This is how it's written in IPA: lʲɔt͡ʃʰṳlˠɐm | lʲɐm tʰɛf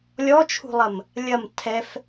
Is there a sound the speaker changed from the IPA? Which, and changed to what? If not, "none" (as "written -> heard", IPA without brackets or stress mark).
none